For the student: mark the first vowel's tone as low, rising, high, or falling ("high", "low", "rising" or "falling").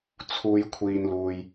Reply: high